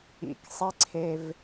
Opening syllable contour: low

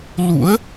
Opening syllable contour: rising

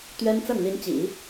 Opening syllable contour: high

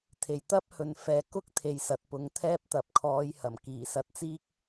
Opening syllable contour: low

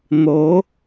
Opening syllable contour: rising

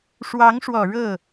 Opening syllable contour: rising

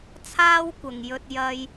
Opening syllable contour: high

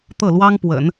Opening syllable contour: falling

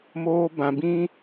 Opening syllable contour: high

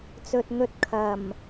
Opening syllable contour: low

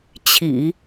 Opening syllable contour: low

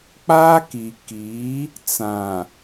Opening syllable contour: high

